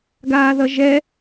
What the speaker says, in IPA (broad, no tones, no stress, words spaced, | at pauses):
ɡaːðʌʒɛ